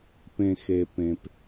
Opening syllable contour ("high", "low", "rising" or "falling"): low